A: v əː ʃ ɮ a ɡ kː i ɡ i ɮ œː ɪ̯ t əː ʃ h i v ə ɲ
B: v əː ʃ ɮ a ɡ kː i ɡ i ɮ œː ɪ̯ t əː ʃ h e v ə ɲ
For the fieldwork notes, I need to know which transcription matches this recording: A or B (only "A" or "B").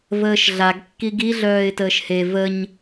B